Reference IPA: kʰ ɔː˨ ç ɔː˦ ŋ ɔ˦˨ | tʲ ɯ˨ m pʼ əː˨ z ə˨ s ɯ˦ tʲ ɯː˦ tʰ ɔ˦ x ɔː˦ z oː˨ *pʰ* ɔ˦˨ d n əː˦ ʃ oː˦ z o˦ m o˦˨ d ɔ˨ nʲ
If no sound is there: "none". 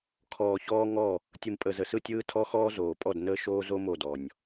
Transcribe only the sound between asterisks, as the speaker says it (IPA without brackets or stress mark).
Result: pʼ